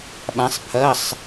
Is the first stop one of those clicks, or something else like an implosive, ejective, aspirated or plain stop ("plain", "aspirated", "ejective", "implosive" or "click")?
implosive